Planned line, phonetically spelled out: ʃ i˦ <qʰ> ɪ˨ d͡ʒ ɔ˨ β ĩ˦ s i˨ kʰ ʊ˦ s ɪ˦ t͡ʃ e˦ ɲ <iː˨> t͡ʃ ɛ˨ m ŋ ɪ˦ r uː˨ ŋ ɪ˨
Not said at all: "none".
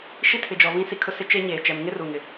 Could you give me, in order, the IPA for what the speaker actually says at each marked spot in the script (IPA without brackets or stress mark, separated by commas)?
tʰ, eː˨